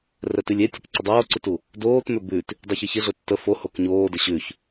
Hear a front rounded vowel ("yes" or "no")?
yes